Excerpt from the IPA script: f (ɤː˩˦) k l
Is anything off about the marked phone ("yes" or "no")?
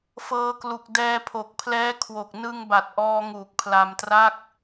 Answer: yes